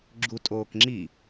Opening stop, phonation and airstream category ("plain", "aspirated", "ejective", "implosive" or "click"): click